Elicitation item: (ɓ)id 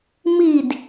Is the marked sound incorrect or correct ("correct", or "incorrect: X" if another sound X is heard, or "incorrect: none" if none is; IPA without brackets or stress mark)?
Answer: incorrect: m